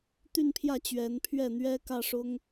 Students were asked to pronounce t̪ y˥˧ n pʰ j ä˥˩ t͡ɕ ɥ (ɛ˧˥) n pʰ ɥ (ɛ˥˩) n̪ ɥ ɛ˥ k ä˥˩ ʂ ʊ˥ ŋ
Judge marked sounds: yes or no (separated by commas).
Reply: yes, yes